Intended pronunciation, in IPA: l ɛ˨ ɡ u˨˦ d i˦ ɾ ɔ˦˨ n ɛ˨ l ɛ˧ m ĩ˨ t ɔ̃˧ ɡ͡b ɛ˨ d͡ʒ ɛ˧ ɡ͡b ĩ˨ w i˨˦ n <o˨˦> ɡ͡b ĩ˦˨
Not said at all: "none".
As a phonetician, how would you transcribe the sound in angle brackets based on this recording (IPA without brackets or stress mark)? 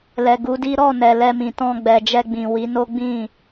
o˦